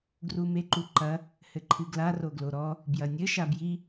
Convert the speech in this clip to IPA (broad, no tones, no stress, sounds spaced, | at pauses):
ɡ r u m e ǃ u ǃ ɐ | h ɘ ǃʰ ɨ ɡ l a r o ɡ l o ɾ ɔ | b j ɐ nʲ ɘ ʃ a b j i